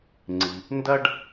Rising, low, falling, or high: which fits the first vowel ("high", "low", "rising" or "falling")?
low